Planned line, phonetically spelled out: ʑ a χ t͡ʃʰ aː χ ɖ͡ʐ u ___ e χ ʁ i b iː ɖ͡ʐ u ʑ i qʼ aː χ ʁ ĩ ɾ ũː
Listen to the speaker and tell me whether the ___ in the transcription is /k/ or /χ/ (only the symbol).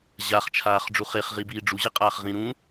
χ